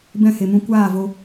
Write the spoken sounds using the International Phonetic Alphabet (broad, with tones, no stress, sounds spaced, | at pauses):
b ɛ̃˦˨ h e˨ m ũ˧ kʷ aː˦˨ v o˧